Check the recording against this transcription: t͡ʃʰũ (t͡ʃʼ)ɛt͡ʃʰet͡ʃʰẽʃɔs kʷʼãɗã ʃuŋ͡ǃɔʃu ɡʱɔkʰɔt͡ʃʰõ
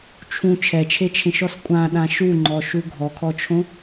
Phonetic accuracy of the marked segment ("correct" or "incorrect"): incorrect